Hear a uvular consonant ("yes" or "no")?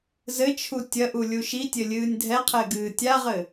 yes